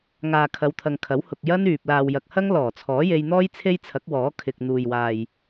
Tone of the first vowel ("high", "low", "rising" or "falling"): low